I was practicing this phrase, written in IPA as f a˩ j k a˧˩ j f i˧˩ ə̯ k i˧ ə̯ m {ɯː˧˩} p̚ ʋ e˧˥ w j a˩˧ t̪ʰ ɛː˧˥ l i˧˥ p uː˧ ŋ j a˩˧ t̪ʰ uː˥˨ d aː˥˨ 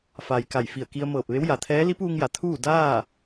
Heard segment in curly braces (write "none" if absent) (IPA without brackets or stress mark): ɤː˧˩